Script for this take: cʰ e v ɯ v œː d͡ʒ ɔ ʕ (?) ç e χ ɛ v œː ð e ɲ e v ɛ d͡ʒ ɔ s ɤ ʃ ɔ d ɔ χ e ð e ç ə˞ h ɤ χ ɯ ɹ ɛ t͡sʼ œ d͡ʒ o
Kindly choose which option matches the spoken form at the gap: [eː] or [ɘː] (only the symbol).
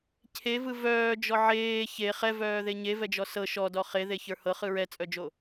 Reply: eː